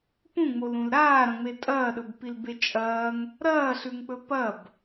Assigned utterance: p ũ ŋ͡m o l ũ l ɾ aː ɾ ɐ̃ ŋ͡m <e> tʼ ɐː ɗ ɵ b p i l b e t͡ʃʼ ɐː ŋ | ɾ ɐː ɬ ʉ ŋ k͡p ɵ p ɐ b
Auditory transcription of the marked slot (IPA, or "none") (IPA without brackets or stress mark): e